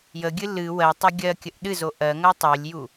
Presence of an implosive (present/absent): present